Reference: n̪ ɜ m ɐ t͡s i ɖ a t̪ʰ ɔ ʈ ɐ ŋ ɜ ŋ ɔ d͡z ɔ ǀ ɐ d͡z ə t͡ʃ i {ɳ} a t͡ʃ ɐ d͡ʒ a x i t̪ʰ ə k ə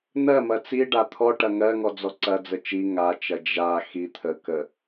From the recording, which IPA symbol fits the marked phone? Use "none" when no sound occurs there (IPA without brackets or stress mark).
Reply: ŋ